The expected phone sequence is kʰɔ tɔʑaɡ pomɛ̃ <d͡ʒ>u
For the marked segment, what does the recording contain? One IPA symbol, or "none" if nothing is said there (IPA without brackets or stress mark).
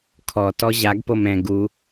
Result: ɡ